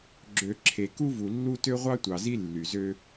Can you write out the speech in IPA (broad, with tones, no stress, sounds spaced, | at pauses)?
ɡ͡ǁ ø˨ ǁʰ e˨ k u˦ v u˨ lː u˦ t ø˦ ʁʷ ɑ˦ tʷ ɑ˨ z i˦ lː y˨ z ø˦